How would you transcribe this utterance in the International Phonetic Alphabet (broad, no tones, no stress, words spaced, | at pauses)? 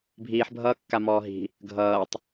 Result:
bʱiːħbʱʌːkːamɔː ɦi̤ | ɡʱʌːtˤ